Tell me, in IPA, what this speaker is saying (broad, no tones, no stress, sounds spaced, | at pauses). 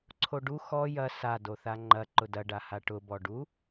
ǀʰ o ɖ u x ɔ j ɐ s a d o θ a ŋ͡ǃ ɐ ǃ ʊ d ɐ ɖ a h a ʈ ʊ b ɔ ɖ u